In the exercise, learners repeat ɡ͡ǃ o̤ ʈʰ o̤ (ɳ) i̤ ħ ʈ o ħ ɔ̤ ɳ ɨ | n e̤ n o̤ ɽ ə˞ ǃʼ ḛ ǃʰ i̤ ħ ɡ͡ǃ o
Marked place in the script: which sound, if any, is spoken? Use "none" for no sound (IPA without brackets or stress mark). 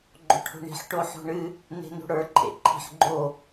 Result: ɳ